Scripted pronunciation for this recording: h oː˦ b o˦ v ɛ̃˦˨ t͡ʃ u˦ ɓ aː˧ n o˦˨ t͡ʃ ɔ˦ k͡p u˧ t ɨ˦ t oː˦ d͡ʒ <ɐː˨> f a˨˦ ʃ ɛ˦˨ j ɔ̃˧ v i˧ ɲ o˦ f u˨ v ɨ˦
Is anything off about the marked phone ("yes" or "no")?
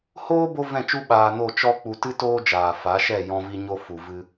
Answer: yes